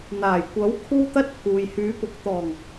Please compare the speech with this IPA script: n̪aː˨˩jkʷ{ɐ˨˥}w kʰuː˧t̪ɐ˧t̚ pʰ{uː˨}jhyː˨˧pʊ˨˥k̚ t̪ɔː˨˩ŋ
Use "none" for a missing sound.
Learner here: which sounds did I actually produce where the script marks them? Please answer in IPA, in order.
ɐ˨˥, uː˨

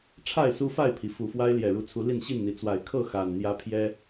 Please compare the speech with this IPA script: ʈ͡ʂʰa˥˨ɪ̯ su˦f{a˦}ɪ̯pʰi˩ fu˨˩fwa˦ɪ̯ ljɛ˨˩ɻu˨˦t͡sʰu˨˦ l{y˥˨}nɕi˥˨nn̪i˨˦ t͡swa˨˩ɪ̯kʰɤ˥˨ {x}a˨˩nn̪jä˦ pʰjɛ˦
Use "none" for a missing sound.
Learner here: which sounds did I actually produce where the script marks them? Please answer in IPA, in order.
a˥˨, i˥˨, x

